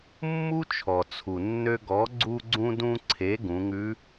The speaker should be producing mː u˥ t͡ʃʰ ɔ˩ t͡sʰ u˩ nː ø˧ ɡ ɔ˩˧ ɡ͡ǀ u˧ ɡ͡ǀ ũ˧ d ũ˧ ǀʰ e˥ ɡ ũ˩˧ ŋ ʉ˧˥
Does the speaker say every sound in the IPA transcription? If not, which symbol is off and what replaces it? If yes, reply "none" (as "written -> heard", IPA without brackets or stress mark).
e˥ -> e˩˧